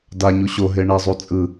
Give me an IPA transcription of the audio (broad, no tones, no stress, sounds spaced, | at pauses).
d a ɲ u ɕ o ɦ e ɳ ɛ zˤ u t͡sʼ ɯ